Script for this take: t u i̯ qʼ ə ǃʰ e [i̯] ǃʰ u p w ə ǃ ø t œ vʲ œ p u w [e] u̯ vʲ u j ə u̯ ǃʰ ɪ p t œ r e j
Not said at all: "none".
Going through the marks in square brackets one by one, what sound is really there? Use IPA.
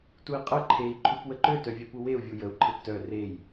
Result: i̯, e

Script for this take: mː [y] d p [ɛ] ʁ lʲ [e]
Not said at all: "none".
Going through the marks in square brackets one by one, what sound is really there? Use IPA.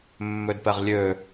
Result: ø, ɛ, ø

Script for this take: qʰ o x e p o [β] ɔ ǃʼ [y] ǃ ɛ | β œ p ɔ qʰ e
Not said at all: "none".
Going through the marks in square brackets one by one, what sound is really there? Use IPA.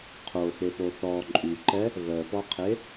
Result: θ, y

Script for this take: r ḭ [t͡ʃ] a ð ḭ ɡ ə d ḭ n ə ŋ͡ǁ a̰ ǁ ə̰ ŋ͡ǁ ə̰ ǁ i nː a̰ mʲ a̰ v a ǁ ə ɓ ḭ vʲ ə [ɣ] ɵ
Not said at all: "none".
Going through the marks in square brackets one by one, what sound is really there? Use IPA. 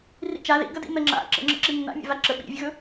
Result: t͡ʃ, ɣ

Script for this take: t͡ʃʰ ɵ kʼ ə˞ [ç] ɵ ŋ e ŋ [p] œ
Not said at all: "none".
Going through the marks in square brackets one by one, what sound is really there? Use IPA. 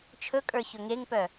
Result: ç, p

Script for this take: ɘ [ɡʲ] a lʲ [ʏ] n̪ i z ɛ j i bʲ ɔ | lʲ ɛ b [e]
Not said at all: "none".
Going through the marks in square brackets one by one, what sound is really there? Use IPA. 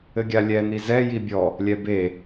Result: ɡʲ, ɛ, e

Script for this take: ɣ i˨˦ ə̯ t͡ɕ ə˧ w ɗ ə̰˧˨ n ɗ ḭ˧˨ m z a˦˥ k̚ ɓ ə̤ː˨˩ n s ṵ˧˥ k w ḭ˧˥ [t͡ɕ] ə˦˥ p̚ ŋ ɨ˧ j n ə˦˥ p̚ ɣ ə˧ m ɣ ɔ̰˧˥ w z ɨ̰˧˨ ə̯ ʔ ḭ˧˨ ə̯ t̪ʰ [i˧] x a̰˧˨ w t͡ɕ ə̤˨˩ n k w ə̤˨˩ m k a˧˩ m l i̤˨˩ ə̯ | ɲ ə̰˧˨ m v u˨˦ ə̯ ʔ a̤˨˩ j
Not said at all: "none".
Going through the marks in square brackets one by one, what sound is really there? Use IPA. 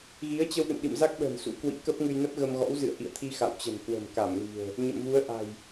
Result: k, i˧

